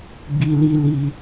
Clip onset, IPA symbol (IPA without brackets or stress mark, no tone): ɡ͡b